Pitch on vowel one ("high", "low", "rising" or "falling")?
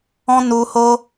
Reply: high